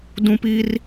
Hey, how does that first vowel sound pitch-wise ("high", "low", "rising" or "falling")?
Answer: high